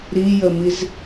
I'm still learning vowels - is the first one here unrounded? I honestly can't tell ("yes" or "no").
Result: yes